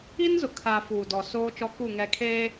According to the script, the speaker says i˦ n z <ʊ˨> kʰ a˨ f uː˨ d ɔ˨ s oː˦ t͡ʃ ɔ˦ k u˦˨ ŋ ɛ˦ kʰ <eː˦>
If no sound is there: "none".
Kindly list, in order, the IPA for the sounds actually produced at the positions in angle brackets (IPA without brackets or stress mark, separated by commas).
ʊ˨, eː˦